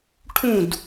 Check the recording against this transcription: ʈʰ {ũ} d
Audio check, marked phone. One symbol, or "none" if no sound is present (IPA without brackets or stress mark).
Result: ũ